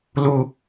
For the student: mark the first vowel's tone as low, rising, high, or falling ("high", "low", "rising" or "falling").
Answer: high